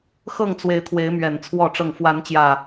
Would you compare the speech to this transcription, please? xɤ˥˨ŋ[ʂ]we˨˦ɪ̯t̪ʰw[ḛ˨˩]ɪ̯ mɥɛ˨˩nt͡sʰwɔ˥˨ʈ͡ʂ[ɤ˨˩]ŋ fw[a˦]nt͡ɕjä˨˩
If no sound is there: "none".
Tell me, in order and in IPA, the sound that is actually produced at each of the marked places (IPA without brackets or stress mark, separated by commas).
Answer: t͡s, e˨˦, ɤ˥˨, a˨˦